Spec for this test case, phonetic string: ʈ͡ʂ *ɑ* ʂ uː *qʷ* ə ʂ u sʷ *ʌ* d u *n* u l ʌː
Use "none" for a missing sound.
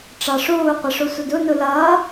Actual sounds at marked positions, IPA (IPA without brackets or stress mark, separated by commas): ɑ, qʷ, ə, n